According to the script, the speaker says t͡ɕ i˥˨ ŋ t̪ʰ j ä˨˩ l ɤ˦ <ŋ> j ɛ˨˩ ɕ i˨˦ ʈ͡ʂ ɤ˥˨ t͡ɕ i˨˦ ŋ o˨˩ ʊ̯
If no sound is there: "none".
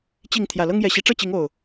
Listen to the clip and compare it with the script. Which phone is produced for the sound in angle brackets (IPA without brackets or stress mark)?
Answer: ŋ